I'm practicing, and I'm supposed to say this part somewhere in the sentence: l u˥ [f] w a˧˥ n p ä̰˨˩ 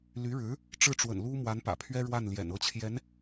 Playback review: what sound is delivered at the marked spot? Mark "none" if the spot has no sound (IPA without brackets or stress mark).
m